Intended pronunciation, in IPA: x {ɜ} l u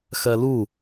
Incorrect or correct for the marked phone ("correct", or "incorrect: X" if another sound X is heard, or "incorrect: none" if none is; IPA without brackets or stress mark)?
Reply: correct